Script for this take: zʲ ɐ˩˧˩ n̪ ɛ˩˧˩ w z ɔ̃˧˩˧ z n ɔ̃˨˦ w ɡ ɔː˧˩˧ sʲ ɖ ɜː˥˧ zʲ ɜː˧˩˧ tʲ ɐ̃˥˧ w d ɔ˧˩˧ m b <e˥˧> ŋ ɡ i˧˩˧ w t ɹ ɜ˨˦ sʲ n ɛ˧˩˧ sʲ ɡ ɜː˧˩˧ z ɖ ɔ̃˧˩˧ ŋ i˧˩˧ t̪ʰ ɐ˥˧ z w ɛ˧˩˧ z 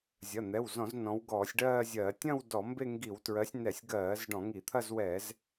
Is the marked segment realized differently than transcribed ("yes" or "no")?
no